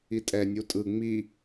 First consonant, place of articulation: alveolar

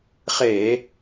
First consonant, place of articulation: uvular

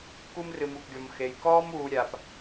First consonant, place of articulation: velar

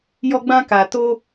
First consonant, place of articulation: palatal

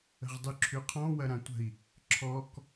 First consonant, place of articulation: uvular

